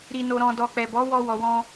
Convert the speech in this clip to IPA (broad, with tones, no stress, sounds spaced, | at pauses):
ɾ i˨ n o˨ ɾ ɔ̃˨ d ɔ˨ k͡p ɛ˨ b ɔ˨˦ w ɔ˧ w ɔ˨ w ɔ̃˧